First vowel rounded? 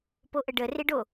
yes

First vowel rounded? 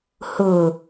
yes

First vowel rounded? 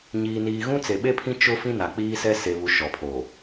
no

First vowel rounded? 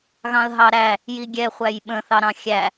no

